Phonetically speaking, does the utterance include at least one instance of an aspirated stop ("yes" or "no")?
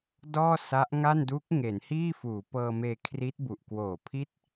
yes